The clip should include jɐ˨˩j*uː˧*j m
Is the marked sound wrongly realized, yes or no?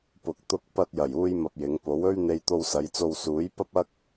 no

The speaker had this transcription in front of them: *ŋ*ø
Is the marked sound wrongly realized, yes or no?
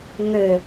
no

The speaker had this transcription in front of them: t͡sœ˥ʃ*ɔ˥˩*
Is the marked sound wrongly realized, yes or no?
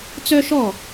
no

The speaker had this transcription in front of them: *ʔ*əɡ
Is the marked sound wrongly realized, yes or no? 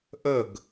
no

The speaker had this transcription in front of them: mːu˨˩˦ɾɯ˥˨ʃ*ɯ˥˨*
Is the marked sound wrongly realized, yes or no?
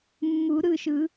yes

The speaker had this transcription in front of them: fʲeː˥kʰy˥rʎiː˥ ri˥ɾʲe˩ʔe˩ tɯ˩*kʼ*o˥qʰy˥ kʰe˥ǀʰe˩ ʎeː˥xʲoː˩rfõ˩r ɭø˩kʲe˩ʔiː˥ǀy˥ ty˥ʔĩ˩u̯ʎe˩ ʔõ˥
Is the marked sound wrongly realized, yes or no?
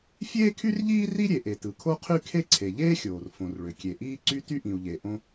yes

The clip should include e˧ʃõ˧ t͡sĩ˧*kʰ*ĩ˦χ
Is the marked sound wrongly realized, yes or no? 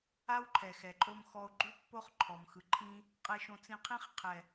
yes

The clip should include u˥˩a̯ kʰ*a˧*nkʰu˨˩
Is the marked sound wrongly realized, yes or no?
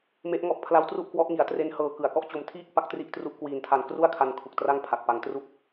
no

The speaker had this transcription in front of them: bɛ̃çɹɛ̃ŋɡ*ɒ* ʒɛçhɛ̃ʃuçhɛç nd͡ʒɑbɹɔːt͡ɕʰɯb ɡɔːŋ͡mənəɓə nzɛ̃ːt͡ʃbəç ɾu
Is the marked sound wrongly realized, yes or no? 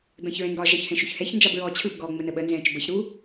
no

